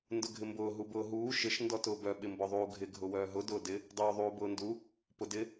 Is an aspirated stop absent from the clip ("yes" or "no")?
yes